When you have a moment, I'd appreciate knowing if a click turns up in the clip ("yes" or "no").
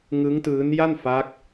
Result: no